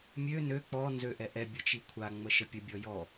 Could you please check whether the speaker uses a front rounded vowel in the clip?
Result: yes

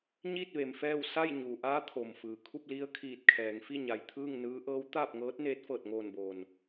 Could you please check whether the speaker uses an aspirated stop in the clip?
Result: yes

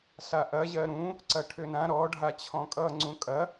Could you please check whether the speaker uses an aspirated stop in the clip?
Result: yes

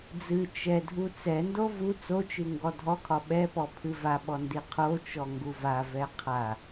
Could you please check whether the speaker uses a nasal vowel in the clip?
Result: no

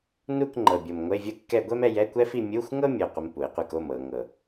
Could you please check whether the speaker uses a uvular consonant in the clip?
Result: yes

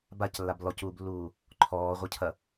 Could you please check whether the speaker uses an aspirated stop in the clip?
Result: yes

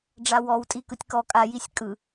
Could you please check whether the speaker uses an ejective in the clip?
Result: yes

